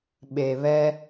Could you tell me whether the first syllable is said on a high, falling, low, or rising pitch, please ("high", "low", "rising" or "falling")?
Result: low